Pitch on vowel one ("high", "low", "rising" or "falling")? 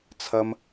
high